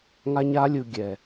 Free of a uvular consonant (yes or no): yes